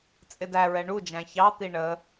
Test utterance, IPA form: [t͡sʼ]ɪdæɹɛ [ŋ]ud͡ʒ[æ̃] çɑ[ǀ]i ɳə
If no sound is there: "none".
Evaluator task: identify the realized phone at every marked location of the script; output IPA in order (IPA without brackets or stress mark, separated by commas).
t͡sʼ, ɳ, æ̃, t̪